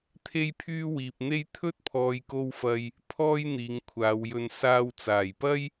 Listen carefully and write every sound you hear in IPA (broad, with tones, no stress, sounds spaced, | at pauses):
t̪ʰ e˥ j pʰ yː˥ w iː˨ p̚ n̪ e˥ j t̪ʰ ɵ˥ t̚ pʰ ɔː˨ j k o˧ w f ɐ˨ j | pʰ ɔː˥ j n̪ iː˨˧ ŋ kʷʰ aː˨˧ w j ɵ˧ n s aː˧ w t͡s aː˨˩ j p ɐ˥ j